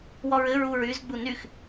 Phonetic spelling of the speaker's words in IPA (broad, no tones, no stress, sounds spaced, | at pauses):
w ɔ ɹ ɘ ɹ u ɹ y z ɡ͡b u n y x